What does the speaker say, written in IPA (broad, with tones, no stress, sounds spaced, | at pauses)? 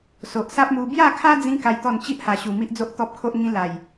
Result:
s o˨ ʔ s a˦ p̚ m u˧ b j a˥˧ kʰ a˦ d͡z ĩ˧ k a˦ j t̪ ɔ˥˧ n t͡ɕ i˦ ʔ h a˨˩ ɕ u˨˩ m i˦ ʔ d͡z o˦ ʔ t̪ ɔ˦ p̚ kʰ o˦ ʔ ŋ ĩ˦ l a˨˩ j